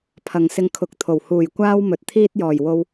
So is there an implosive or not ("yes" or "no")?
no